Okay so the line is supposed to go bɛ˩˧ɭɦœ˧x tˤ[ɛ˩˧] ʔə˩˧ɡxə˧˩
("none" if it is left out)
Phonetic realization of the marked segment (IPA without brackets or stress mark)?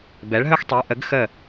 ɛ˩˧